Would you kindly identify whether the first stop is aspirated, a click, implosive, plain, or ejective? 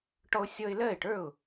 plain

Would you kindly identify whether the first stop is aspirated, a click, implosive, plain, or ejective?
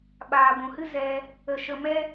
implosive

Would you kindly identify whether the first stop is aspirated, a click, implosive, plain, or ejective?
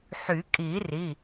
ejective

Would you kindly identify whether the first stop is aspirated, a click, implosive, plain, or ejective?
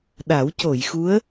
implosive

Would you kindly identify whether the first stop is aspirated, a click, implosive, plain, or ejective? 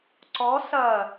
click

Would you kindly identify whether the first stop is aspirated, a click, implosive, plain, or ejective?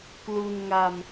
plain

